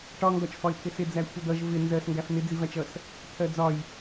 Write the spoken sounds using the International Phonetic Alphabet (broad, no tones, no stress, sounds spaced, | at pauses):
ʈ ɒ ŋ ɡ ɒ t͡ʃ f ɒ ɪ̯ t̪ʰ ɪ s ɪ d͡z æ kʷʰ ʌ d̪ ʌ ʒ v ɪ n z ɜ s ŋ ɡ æ f n̪ ɪ d͡z i v æ t͡ʃ ʌ s | t̪ʰ ɜ d͡z ɒ j